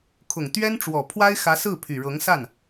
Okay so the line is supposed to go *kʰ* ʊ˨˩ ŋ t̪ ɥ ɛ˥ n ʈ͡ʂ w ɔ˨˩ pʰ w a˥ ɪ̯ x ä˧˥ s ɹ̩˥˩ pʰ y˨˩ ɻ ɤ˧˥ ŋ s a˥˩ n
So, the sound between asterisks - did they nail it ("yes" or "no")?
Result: yes